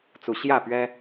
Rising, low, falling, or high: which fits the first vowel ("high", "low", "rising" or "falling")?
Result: rising